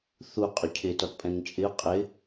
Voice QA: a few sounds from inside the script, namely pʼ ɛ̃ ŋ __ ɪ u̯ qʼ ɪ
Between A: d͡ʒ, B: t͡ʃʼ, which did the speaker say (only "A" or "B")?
B